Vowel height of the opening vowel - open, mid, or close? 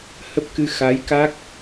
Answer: mid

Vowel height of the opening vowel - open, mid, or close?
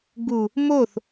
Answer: close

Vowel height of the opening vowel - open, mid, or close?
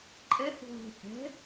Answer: mid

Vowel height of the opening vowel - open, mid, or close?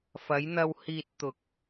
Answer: open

